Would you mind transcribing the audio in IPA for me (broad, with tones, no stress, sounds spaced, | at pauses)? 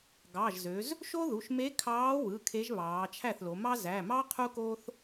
ɡ ɑ˩˧˩ ʒ z ø˩˧ z | ʃ o˥ ð u˩˧˩ ʃ m e˧˥ kʰ ɑː˧˥ w ɯ˩˧˩ kʰ e˧˥ ʒ β ɑː˩˧ t͡ʃʰ æ˥˩ θ l o˩˧ m ɑ˥ z æ˩˧˩ m ɑ˥ qʰ u˥ k oː˥ θ